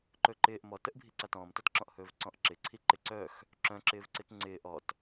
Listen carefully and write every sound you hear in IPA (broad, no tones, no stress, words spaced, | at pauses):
ǃɵǃɪːʔ mɔtəʔbʱi ǀatɔ̃ːmtɔtǁɔ̃ʔ hɵːvǀɔ̃ʔǁɪǀʰi ǃɪǀœx | ǁœ̃ǁɪːvǀɪt ŋ͡ǀɪː ʔɔt